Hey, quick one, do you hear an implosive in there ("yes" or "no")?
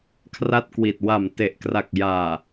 no